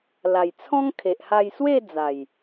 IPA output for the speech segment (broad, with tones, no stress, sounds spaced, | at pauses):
l a˨˩ j t͡sʰ ɔ̃˦ ŋ kʰ e˨ ʔ h a˧ j s w e˥˧ d͡z a˨˩ j